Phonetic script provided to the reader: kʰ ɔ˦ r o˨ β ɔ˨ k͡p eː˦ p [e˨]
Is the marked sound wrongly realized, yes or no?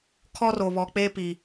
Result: yes